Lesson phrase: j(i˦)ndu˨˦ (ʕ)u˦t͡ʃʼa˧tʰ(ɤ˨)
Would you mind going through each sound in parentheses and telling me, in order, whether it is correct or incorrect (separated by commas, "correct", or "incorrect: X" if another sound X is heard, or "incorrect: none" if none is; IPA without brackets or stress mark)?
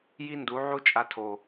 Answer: correct, correct, incorrect: o˨